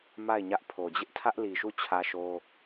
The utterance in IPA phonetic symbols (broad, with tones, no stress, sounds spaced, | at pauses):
m a˦˨ ɪ̯ ɲ ä˦ ʔ pʰ o˨ d͡ʑ ɪ˦ ʔ tʰ ä˦ ʔ l i˨ ʃ u˦˨ t͡ɕʰ ä˦ ʃ o˦